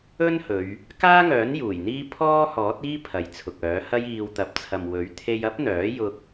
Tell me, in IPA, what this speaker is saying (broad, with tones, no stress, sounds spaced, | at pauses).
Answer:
ɵ˥ n h ɵ˨˧ ɥ | k aː˥ ŋ œː˨˥ n j uː˨˩ j n̪ iː˥ pʰ ɔː˥ h ɔː˨˥ t̚ iː˥ pʰ ɐ˨ j t͡sʰ ʊ˨ k̚ œː˨˥ h ɐ˥ j iː˧ w t̪ ɐ˨ p̚ t͡sʰ ɐ˨ m w ɵ˨˥ ɥ t̪ʰ e˧ j ɐ˥ p̚ n̪ œː˨˥ j ʊ˧ k̚